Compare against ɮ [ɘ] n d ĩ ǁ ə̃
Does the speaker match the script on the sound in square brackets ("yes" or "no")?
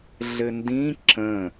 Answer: yes